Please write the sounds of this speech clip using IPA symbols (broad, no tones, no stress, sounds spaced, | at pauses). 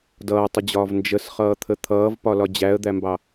d ʌː tˤ ə d͡ʑ ɒː v n d͡ʒ ə s χ ʌː t̪ʰ ə t̪ʰ ʌː v p ɒ l ɒ d͡ʑ æ ə̯ d̪ æ m b ɑ